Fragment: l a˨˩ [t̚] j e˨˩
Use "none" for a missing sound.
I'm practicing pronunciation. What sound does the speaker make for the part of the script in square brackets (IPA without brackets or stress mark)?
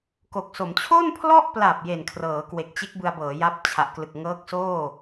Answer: p̚